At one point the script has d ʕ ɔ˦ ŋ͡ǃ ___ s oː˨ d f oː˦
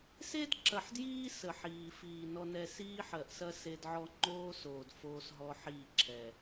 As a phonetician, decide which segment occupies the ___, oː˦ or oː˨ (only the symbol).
oː˦